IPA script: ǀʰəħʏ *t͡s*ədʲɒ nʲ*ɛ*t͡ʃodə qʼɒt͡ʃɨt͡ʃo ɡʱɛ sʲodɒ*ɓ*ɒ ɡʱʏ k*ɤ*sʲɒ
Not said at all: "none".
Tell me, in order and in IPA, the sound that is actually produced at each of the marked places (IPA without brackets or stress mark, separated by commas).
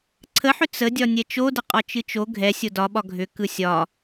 t͡s, ɛ, ɓ, ɯ